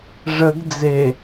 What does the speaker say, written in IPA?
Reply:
ʐ ə ɡ d͡z e

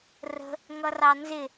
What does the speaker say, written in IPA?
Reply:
r ə̤ | ŋ ʌ r ɑ n z ɪ

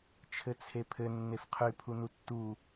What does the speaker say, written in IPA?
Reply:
t͡ʃʰ ɘ t͡sʰ e pʰ ɘ nː e f qʰ y pʰ u n u tː u

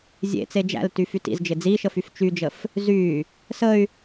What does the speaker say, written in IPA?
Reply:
zʲ ḛ t͡s e d͡ʒ æ̰ l t y f y t ḭ z d͡ʒ ɪ d͡z i ʃ ə f y f t͡ʃ y d͡ʒ ə f | z y | s ə y̯

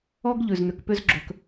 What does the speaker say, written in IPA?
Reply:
ɔ˦ ɡ ʎ ʉ˨ z n̪ ʏ˨ k p ʏ˦ z ɡ͡ǁ ɵ˦ k

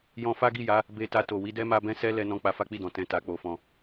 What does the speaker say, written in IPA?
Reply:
j ɔ̃˧ f a˦ ɡ i˦˨ j a˨˦ | b e˧ t a˧ t o˨ w i˧ d ɛ˦ m a˧ b ɛ̃˦ s ɛ˦ l ɛ˧ n ɔ̃˧ k͡p a˧ f a˦ k͡p i˦˨ d ɔ̃˨ t ɛ̃˧ t a˧ k͡p o˧ f ɔ̃˧

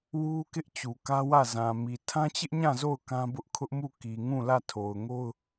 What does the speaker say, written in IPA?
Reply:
w u˦ k ɪ˦ ʔ t͡ɕ u˨ k ä˦ w ä˦˨ z ã˨ m i˨ tʰ ã˦ t͡ɕ ɪ˦ ʔ ɲ ã˦˨ z o˦˨ ʊ̯ k ã˦ b ʊ˦ ʔ kʰ ʊ˦ ʔ m u˦˨ k i˨ ŋ ũ˦˨ l ä˦˨ tʰ o˨ ʊ̯ ŋ o˦ ʊ̯

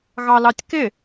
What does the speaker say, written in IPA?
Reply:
ɣ ɑ l ɑ tʲ k ɪ

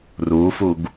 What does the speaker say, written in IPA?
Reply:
r u f u ɡ

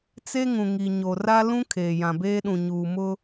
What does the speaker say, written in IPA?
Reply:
t͡s e˦ ŋ ũ˨ ŋ i˨ ɲ o˨ r a˦ l ũ˦ kʰ eː˨ j ã˨ b eː˦ ɗ ũ˨ ɲ uː˨ m ʊ˦

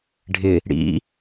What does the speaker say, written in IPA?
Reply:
ɖʱ ɪ | ɽ ḭ

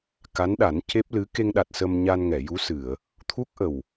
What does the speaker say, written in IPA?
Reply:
k a˧˥ n ɗ a˨˩˦ n c e˦˥ p̚ l ɨ˧˥ k e˧ ŋ ɗ a˨˩ t̚ s ə˧ m ɲ a˧ n ŋ ɛ˨˩˨ j u˧˥ s ɨ˨˩˨ ə̯ | t̪ʰ u˦˥ k̚ ʔ ə˨˩ w

